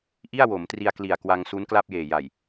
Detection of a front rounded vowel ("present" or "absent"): absent